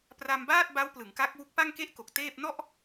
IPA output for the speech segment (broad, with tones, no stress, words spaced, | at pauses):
pra˧mbaː˥˩t̚ ba˦˥wplɯ˩˦ŋka˦˥k̚ wu˦˥k̚ pa˥˩ŋke˥˩ʔko˨˩k̚ teː˥˩p̚ nɔ˥˩ʔ